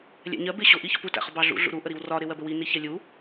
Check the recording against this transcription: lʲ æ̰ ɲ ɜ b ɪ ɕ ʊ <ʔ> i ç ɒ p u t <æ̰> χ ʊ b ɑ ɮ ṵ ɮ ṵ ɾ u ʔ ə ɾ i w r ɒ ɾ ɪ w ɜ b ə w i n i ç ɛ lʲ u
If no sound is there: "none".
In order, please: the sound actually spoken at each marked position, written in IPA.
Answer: ʔ, æ̰

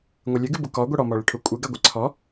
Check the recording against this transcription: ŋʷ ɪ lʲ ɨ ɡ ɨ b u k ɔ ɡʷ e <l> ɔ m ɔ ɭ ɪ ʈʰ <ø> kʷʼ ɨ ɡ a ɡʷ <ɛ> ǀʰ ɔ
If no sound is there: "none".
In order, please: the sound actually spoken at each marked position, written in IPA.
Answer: ɽ, u, ɛ

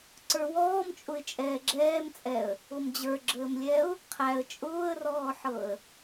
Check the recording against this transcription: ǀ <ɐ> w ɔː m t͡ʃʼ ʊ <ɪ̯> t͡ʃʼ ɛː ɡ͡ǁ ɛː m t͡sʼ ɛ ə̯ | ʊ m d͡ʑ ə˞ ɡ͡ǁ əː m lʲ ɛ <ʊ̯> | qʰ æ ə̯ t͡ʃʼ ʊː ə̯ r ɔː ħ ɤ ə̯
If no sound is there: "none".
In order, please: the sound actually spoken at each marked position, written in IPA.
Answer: ə˞, ɪ̯, ʊ̯

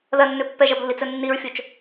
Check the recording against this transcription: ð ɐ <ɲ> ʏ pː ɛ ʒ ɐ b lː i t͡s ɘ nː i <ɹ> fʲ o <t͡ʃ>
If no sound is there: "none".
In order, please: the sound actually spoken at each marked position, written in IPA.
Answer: nː, ɹ, t͡ʃ

